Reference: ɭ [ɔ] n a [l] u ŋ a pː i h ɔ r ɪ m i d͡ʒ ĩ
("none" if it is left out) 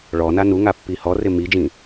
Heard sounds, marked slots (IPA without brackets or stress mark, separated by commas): ɔ, n